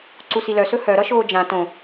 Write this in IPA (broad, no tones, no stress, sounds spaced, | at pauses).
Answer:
ǀ u s i l œ s ɵ h œ ɾ ʌ ʃ oː d͡ʒ ã t õ